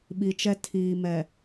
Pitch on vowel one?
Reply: low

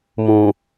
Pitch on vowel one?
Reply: low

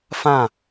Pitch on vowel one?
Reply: falling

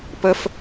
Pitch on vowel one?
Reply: high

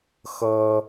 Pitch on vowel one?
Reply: high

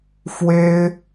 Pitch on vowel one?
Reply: high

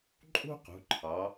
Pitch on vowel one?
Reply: high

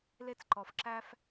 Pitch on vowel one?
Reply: high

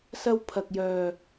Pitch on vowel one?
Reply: high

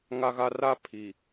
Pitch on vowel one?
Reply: high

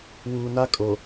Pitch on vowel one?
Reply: low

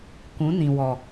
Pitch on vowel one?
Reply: rising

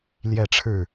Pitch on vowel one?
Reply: falling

